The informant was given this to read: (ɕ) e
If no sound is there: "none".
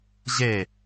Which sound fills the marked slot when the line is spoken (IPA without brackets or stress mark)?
ʑ